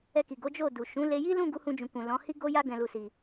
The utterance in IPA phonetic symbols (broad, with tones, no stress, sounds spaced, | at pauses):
ɛ˧ k i˨ ɡ o˨˦ d͡ʒ o˦˨ d u˨ ʃ ũ˨˦ l e˧ j i˦ l ũ˦˨ ɡ u˨˦ h ũ˧ d͡ʒ ũ˨ k ũ˨ l ɔ̃˨˦ h i˦ ɡ o˦ j a˦ ɡ ɛ̃˧ l u˧ s i˧